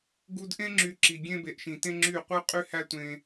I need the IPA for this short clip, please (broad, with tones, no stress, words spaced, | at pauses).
ɡu˧d ʔẽ˦ŋ͡ǁy˧ ǁi˨ ɡʲẽ˦be˧ʔʃĩ˧ tẽ˦ŋ͡ǁy˦˨qʷɯ˦ qʼy˦hæ˦ tʷẽ˧